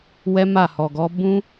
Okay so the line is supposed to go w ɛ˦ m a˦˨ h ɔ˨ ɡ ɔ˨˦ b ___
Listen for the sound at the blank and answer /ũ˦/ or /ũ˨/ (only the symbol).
ũ˦